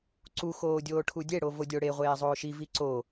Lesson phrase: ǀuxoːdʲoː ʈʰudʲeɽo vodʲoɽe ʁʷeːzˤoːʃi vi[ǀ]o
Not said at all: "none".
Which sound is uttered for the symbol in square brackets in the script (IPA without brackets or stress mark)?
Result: ǀ